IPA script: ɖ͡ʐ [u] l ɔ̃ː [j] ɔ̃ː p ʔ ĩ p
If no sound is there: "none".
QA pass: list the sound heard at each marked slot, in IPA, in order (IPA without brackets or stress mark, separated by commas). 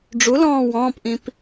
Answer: u, w